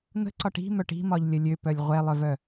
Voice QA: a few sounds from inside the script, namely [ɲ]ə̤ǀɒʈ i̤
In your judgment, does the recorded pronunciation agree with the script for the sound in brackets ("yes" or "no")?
no